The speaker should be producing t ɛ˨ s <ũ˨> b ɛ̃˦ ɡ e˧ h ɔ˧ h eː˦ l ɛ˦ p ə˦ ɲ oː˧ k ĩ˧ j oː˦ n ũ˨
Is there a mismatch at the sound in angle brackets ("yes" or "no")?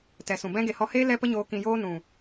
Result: no